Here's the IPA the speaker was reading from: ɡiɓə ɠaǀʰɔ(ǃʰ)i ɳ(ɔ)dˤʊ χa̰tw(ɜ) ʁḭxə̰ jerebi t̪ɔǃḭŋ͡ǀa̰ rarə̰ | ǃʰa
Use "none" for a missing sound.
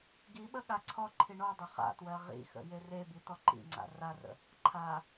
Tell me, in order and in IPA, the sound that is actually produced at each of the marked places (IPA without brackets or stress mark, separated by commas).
ǃʰ, ɔ, ɜ